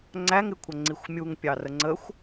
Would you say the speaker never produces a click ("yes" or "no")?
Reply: no